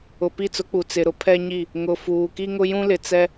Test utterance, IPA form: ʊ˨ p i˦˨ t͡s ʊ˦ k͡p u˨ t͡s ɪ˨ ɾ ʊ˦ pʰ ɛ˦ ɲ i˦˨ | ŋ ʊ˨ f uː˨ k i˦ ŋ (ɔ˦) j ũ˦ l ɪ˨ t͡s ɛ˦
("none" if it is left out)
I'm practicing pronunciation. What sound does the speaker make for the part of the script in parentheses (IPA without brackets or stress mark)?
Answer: ʊ˦